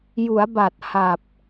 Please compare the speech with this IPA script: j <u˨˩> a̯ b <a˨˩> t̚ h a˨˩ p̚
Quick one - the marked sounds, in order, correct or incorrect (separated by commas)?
incorrect, correct